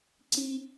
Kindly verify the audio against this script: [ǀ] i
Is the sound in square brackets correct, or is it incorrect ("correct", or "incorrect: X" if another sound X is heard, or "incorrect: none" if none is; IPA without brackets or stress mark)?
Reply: correct